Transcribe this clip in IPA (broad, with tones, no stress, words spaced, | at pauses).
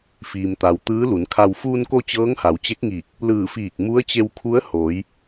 fiː˩mt̪a˩w t̪ɯː˧˥lu˩˧nkʰa˧w fuː˧nko˧ t͡ɕɤː˧˥ŋha˩˧wt͡ɕe˧˥k̚ŋiː˧˩k̚ | lɯː˧˩fiː˧˩k̚ mu˧˥ə̯t͡ɕe˧wkʰu˧˥ə̯hoː˩˧j